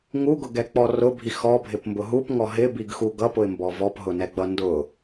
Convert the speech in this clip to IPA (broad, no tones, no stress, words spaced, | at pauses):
ŋuɡʊɡɛk͡pɔ rʊbʱi xɔbʱɪpmbʊ ɦupŋɔ ɦɪbiɡxuɡ ʌpʊɪ̯mbɔ vɔpɦʊnɛɡ͡bʌ ndʊ